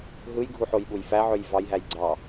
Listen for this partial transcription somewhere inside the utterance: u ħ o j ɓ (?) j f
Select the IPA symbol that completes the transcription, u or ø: u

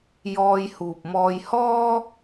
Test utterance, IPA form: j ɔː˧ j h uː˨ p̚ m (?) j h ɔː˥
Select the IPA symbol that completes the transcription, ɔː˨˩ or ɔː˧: ɔː˧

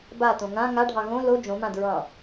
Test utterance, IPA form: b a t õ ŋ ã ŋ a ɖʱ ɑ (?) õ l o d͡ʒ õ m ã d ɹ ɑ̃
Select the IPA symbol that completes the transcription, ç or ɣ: ɣ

